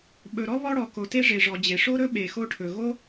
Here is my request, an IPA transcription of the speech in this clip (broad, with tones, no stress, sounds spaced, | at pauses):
ɓ ɵ˩ ɾ ɔ˥ β ɔ˥ ɽ ɔ˩ k o˩ t e˥ ʐ e˩ ʐ ɔ˩ d͡ʑ e˩ ʂ o˥ ɾ ɵ˥ ɓ e˩ x o˥ ʈʰ ɵ˩ ɣ o˥